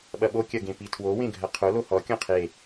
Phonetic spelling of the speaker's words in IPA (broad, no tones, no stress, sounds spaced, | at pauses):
ɓ ɐ ɓ o kʲ ɐ ɡ ẽ p i tʰ w o w ẽ ɡʱ ɐ qʰ o l o h ɔ kʲ ɔ̃ qʰ e